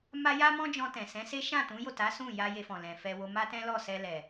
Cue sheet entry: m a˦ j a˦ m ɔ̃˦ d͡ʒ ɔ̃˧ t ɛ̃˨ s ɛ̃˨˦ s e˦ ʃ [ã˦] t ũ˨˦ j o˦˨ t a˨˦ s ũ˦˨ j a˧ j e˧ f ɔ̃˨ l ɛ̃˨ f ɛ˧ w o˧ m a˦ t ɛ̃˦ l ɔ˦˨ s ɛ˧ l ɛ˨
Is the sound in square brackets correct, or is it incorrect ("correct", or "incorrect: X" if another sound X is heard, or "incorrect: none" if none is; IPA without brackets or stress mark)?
incorrect: ã˦˨